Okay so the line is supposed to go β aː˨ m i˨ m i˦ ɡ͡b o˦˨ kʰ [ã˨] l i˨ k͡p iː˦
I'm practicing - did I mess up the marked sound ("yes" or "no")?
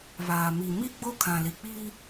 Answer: no